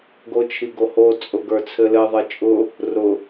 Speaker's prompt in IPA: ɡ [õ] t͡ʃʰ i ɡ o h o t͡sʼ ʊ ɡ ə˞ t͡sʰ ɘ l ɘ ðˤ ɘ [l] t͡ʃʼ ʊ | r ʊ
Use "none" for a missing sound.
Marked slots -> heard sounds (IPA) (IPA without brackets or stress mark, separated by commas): o, none